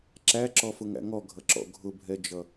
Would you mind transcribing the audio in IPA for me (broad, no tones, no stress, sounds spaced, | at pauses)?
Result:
ǁ æ ǁ ɔ f ʊ ŋ æ̰ ŋ ɔ ɡʱ ʌ ǁ ɔ̰ ɡʱ ʊ bʱ ɛ d͡ʒ ʌ